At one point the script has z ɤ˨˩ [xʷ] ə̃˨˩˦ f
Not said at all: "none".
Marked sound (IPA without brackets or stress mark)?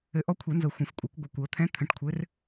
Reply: xʷ